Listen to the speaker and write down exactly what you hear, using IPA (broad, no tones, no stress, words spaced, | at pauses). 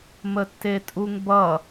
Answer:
mətːetʼuŋbʌ